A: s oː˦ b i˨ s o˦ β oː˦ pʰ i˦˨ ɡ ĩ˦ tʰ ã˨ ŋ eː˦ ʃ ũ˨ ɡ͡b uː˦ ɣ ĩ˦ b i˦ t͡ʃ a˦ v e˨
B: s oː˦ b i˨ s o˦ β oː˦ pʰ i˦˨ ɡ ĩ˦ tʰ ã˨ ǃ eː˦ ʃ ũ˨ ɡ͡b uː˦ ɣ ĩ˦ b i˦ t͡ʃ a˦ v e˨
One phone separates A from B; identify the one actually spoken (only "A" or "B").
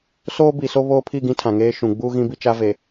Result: A